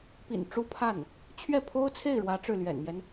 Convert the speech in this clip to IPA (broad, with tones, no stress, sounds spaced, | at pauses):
p ḭ˨˩ n ʈ͡ʂ u˥ pʰ a˥˩ n | t͡ɕʰ ɥ ɛ˥˩ pʰ o˥ ʊ̯ t͡sʰ e˥˩ ɪ̯ ɻ w ä˧˥ ʈ͡ʂ ɻ̩˥˩ l ɥ ɛ̰˨˩ n m j ɛ˦ n